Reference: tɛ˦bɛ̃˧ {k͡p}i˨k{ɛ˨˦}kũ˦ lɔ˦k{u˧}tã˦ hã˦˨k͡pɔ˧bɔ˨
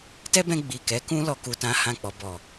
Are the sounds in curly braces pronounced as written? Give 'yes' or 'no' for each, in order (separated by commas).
no, yes, yes